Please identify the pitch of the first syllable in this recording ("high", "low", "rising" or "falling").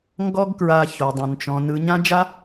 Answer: high